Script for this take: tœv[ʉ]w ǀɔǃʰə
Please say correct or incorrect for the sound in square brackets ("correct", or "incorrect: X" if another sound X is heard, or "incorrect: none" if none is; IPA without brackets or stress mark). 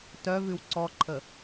correct